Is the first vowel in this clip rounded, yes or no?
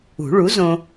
yes